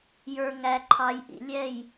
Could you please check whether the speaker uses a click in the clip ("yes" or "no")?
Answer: yes